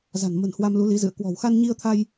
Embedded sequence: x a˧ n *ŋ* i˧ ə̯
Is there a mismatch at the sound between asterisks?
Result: yes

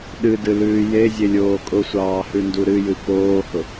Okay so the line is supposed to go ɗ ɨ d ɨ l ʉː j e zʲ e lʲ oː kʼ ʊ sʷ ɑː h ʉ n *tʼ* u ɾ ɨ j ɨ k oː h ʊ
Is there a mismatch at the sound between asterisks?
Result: yes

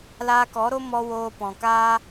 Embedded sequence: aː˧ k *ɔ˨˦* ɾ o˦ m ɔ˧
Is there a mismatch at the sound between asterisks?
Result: no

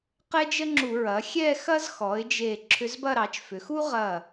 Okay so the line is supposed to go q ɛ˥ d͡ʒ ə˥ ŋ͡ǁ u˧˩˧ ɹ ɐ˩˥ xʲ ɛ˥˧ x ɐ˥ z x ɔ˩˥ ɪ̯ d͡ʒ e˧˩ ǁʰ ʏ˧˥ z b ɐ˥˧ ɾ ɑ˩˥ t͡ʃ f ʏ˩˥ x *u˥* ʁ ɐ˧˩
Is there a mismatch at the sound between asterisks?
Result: no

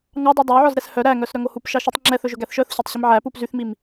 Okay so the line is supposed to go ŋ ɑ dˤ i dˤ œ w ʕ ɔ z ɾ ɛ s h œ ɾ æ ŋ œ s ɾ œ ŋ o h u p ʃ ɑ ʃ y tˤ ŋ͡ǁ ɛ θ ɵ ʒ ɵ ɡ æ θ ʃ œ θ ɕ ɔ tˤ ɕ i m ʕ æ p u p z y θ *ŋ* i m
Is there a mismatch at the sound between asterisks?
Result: yes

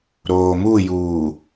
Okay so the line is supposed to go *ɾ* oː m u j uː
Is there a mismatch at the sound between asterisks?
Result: no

